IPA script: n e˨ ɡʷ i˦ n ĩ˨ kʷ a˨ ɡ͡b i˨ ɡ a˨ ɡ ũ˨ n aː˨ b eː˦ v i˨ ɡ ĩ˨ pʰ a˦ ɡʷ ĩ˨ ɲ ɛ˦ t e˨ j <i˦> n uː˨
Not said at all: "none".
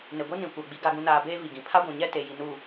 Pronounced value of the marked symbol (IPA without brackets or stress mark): i˨